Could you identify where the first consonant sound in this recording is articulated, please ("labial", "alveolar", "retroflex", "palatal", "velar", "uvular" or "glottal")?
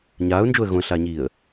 palatal